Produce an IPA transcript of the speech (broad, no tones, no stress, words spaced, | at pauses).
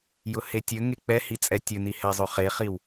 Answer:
jʊhetʲɵŋe k͡pɛhi t͡sʼɛtʲɵni hɛzˤɵχeχiw